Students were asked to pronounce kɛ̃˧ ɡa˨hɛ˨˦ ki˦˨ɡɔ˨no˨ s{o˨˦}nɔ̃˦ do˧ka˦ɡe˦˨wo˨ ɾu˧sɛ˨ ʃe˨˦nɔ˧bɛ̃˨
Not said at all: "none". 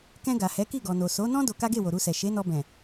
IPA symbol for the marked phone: o˨˦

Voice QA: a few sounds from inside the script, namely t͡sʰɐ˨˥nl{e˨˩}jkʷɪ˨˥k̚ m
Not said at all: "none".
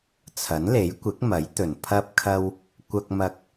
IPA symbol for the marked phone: e˨˥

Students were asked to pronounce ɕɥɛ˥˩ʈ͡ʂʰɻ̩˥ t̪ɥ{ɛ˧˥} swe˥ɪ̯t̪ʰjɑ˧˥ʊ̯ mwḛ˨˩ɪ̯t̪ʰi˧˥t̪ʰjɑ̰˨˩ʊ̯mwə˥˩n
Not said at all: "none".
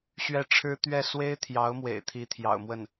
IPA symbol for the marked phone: ɛ˥˩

